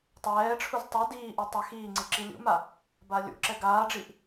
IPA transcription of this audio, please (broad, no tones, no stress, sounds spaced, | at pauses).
tˤ ɛː ʈ͡ʂʰ u z tˤ u d iː ʔ u tˤ ɛ x iː ŋ͡ǀ i ǁ i lʲ ṵ m a | b a lʲ ṵ ǁ ɛ ɡ aː ɖ͡ʐ i ʔ